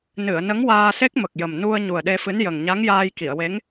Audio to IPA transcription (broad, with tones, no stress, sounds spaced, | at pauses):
n ɨ˨˩˨ ə̯ n ə˧˥ ŋ w aː˧ s e˦˥ k̚ m ə˨˩ k̚ j ə˨˩ m n u˧ ə̯ ɲ u˨˩ ə̯ ɗ e˧ f ɨ˧˥ n j ə˨˩ ŋ ɲ a˧˥ ŋ j aː˧ j k i˨˩˨ ə̯ w e˧˥ ŋ